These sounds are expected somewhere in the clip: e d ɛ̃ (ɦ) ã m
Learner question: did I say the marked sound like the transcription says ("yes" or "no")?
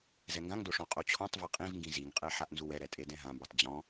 yes